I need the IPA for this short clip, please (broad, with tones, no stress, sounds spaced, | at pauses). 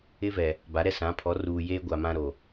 ɪ˦ v ɛ˨ | b a˨˦ ɾ ɛ˦ s ã˨˦ pʰ ɔ˨˦ r uː˨ j eː˦ ɡʷ a˨ m ã˦ ɾ o˨